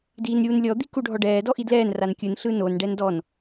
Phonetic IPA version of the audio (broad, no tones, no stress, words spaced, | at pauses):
diːnɾʲuːnlʲɔ d̪ikuɖʱɔɖɛː dɔʔidlɛːn rankʲɯn ɬɯnon ɖɛndɔn